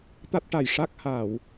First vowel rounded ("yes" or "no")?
no